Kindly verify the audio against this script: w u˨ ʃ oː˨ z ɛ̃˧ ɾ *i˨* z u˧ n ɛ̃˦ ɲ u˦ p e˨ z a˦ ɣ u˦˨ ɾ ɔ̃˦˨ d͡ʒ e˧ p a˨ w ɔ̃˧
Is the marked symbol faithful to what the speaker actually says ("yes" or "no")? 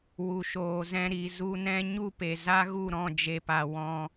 yes